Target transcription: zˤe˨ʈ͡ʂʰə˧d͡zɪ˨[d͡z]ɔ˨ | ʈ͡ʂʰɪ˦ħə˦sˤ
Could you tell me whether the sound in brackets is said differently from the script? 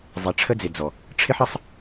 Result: no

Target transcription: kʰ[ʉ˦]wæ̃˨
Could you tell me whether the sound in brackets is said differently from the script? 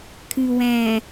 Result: yes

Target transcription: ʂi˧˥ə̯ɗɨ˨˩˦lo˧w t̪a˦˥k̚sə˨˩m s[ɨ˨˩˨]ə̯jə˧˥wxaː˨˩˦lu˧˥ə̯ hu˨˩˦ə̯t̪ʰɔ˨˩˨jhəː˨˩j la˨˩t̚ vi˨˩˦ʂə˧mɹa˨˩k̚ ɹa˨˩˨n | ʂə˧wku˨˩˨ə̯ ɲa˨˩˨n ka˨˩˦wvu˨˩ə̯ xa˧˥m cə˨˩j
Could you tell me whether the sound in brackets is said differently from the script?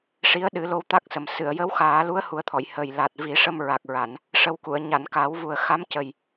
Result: no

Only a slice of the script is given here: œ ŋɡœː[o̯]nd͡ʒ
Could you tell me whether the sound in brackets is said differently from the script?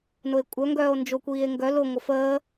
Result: no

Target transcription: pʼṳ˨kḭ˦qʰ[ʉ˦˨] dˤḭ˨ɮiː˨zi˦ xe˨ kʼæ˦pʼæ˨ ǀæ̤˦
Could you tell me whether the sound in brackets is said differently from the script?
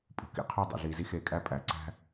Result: yes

